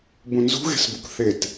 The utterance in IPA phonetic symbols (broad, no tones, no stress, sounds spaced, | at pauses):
b ũ n z ṳ ɣ e̤ s b u k θ e t